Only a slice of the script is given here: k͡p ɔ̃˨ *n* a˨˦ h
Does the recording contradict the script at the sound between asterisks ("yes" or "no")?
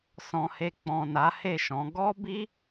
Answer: no